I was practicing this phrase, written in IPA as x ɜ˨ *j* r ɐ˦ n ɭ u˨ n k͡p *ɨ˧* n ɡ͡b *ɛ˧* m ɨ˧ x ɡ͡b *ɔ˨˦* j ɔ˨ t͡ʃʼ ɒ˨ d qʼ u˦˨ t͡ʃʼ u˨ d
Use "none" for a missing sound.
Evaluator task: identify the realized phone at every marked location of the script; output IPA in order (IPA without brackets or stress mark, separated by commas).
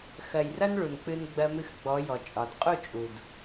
j, ɨ˧, ɜ˧, ɔ˨˦